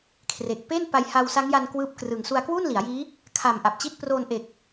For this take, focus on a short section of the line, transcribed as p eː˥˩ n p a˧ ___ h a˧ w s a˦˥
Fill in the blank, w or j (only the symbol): j